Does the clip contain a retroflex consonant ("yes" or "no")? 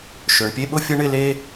yes